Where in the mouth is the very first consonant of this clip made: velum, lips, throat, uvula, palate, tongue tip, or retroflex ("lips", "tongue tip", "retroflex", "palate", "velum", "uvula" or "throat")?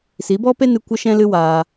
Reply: tongue tip